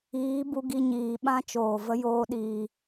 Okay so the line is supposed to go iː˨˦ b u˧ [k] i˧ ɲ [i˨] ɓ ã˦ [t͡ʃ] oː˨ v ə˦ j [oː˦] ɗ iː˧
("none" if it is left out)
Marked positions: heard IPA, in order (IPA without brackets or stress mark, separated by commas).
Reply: ɡ, iː˨, t͡ʃ, oː˦